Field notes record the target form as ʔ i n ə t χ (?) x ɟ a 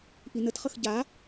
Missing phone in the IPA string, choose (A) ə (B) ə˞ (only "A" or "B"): A